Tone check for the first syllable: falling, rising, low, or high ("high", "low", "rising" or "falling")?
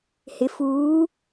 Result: low